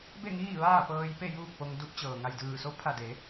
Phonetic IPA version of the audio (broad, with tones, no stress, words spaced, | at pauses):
be˥˨ŋiː˥˨ ʋaː˥˨pɤː˧jpe˥˨ juː˥˨k̚po˧ŋ du˧p̚t͡ɕɤː˩ŋa˧˩j dɯː˧˩so˧˥ pʰa˧˩de˩˧